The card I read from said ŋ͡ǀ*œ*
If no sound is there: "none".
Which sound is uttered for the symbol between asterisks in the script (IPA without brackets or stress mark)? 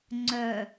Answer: œ